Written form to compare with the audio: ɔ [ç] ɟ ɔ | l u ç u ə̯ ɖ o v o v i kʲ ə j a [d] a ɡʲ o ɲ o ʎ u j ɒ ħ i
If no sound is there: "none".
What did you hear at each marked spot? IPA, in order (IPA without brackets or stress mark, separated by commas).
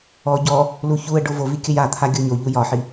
none, t̪ʰ